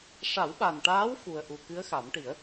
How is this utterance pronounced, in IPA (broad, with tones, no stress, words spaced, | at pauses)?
ʂa˨˩˦wɓa˨˩nʈaː˧˥w fu˨˩ə̯ʔu˨˩ kɨ˧˥ə̯xa˨˩˦mʈi˨˩˦ə̯